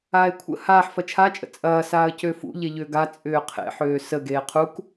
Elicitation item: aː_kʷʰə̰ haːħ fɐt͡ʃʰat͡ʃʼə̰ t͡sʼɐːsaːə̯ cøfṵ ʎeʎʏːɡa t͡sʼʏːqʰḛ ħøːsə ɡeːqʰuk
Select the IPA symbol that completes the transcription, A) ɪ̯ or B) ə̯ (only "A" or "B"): A